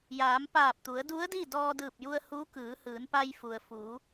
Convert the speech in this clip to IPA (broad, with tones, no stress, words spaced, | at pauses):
jaː˩˧mpaː˧˩p̚t̪u˩˧ə̯ du˧˥ə̯di˥˨ dɔː˧dɯː˧˩p̚ju˧ə̯ hu˧˥ kɯː˩˧hɯː˩˧npa˧j fu˩ə̯fu˩˧